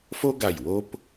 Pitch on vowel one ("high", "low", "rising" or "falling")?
high